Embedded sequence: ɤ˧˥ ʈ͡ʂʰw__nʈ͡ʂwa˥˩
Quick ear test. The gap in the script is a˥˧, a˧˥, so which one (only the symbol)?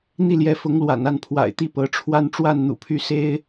a˥˧